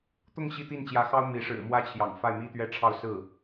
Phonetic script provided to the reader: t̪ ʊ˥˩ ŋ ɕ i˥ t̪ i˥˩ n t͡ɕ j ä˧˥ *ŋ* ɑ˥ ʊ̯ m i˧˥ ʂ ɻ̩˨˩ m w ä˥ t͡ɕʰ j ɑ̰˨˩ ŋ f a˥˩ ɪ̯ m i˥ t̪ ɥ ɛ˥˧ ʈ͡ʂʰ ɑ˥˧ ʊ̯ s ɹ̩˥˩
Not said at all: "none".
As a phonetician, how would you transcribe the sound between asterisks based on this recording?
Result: x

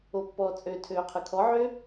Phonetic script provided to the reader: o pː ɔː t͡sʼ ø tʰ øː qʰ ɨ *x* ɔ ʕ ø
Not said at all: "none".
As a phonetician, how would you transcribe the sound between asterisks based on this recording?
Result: kʰ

